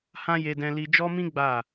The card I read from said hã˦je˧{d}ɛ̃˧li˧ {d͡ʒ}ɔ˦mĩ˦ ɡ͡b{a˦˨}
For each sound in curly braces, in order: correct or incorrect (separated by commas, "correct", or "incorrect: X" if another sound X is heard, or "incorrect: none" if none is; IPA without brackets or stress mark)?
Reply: correct, correct, correct